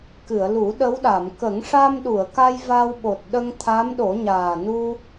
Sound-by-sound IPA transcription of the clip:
k ɨ˨˩˨ ə̯ l u˨˩˦ ɗ ə˧˥ w ɗ a˨˩˨ m k ə˨˩˦ ŋ ʂ a˧ m ɗ u˨˩˨ ə̯ k a˧ j v a˧ w ɓ o˨˩ t̚ ɗ ə˧ ŋ t̪ʰ a˧˥ m ɗ o˨˩˦ ɲ aː˨˩ n u˧

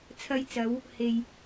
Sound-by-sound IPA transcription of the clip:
t͡sʰ ɐ˧ j t͡s ɐ˨˧ w | h e˨ j

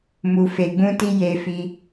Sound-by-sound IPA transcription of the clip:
m u˧ f e˧ ɡ͡b ũ˦ t i˦ j e˧ f i˧

